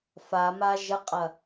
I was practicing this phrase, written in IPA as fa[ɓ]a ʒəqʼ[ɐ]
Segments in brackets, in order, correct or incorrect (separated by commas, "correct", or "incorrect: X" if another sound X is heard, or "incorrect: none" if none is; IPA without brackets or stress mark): incorrect: m, correct